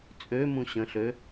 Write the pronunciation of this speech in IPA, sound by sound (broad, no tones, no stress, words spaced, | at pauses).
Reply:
t͡sʼø mũɕə̃ɬø